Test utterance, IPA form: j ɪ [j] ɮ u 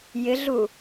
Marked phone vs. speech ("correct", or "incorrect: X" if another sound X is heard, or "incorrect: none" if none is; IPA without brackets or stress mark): incorrect: none